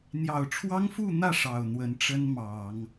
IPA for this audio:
n̪ j ɑ˨˩ ʊ̯ ʈ͡ʂʰ w ɑ˥ ŋ f u˥˧ n̪ ä˥˩ ʂ ɑ˨˩ ʊ̯ n̪ w ə˧˥ n ʈ͡ʂ ə˥ n m ɑ˨˩˦ ŋ

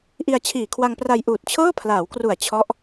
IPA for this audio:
ʔ i˧ a̯ t͡ɕʰ iː˨˩ kʰ w a˧ ŋ p r a˧ j ʔ uː˨˩ t̚ t͡ɕʰ ɤː˥˩ pʰ l aː˩˦ w k r u˨˩ a̯ t͡ɕʰ ɔ˦˥ ʔ

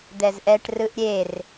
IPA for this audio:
d̪ ɛ z ʔ ɛ ʈ r ɯ ʔ ɾʲ e r

